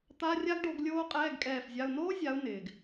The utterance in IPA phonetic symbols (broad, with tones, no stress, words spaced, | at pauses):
t̪a˧˥˧rʲa˥ɡɖo˨˦ɡ lʲoː˥qʼɛː˧˥˧ɡkʼɛː˦˨fzʲa˧˥˧ʊ̯ noː˥zʲa˨˦ʊ̯ nɪː˩ɡ